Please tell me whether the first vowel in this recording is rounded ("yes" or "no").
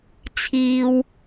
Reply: no